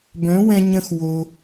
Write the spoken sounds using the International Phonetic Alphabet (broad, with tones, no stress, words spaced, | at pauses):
bœ̃˩˥wɛ̃˧ɲə̃˧x wo˩